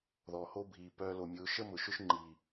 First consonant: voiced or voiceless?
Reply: voiced